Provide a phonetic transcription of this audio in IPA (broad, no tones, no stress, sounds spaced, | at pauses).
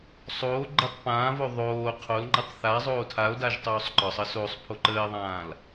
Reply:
sˤ oː ɡ͡ǃ ə tˤ p ãː v o ðˤ oː qʰ o l ŋ͡ǃ ə tˤ θ a zˤ oː tʰ a o̯ d a ʒ tˤ oː sˤ ǃ ɒ sˤ əː s o sˤ pʰ o ǃ əː e̯ ðˤ ãː l